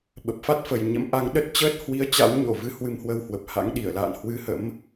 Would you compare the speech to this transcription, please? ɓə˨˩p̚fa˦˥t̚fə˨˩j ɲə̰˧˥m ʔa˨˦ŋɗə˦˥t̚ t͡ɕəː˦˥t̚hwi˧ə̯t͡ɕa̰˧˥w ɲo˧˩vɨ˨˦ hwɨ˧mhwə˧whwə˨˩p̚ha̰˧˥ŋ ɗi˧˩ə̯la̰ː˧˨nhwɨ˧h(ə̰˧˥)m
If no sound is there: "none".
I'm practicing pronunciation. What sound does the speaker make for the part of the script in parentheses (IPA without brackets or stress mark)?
ə̰˧˥